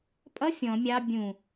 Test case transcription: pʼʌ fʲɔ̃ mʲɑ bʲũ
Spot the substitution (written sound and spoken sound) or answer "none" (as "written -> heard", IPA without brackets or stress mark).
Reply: none